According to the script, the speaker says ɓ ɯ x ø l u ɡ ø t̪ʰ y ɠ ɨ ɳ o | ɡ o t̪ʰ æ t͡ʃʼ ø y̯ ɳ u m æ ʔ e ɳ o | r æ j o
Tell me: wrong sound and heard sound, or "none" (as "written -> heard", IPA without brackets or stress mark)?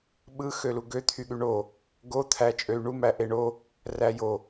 ɨ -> y